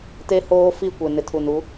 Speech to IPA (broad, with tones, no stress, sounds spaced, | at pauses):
t e˦ h oː˦ f i˦˨ kʷ e˨ n ɪ˨ tʰ u˨ n u˨˦